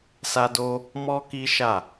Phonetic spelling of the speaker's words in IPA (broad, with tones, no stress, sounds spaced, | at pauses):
s a˧ d o˧ | m ɔ˦ k i˦ ʃ a˦˨